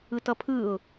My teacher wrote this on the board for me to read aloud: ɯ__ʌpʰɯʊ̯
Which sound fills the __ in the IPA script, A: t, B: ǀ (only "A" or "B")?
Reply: A